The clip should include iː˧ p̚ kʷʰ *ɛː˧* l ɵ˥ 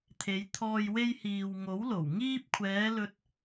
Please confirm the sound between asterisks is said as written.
no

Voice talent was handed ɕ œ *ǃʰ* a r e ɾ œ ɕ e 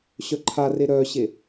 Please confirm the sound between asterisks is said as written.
yes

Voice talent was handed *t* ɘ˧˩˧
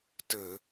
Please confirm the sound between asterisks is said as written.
yes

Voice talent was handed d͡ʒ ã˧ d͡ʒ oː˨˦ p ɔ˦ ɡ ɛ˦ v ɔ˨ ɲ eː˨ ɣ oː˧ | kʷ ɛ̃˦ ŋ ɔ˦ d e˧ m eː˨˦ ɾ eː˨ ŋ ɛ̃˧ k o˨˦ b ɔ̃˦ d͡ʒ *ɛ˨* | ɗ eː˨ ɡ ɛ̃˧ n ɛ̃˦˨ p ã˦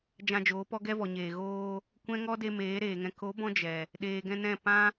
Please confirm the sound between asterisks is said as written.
yes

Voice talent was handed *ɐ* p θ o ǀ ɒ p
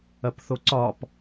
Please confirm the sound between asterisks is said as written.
yes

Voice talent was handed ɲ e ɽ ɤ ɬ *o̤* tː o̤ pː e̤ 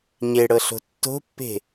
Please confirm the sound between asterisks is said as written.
yes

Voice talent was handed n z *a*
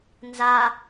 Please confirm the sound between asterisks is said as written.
yes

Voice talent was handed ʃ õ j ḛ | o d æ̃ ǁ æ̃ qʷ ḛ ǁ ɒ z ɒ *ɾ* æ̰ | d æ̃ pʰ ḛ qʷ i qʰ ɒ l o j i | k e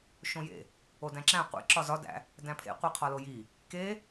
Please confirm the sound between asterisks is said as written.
no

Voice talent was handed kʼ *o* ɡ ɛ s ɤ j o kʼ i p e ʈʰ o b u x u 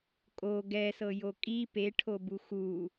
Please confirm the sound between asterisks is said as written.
yes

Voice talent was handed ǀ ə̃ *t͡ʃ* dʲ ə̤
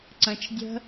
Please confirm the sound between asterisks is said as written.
yes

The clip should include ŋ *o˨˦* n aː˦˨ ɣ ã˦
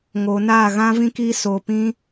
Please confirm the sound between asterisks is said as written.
yes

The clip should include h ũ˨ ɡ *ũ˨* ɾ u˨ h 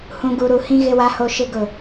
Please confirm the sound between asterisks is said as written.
no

